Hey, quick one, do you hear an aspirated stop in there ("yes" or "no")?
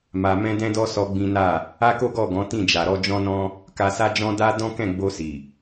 no